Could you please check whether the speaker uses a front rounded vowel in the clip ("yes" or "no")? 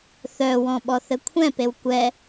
yes